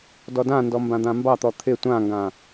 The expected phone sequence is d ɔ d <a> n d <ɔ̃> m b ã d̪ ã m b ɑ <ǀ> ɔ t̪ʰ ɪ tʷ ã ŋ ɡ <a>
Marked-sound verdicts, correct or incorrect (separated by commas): incorrect, incorrect, incorrect, incorrect